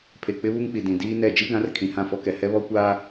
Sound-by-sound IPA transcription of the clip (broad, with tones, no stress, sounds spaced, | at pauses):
pʰ e˨ k͡p ɪ˦ β u˦ ŋ k͡p i˨ d ĩ˨ d iː˦ n ɛ˦˨ d͡ʒ i˦ ɡ ã˨˦ r kʰ ĩ˨ h ã˦˨ f ɔ˦ k ɛ˨ h ɛ˦ β ɔ˦ kʷ aː˦